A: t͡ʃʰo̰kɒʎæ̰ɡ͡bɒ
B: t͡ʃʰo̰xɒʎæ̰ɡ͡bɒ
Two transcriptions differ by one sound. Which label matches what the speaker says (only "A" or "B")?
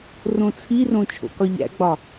A